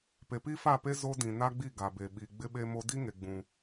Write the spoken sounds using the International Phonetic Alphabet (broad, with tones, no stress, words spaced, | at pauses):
pe˨pi˦fa˦˨pe˦ zo˦dĩ˨ na˦ɡ͡bi˦˨ ɡa˨be˨ ɓi˨ ɡ͡bɪ˦ɓe˦mo˦ di˦ŋe˨ ɡ͡bũ˦